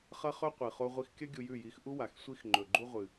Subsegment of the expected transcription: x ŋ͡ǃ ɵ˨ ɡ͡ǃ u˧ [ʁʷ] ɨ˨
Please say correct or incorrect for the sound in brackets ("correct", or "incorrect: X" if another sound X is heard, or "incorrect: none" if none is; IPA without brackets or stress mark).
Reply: correct